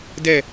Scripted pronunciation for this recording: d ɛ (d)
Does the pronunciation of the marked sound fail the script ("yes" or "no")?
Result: yes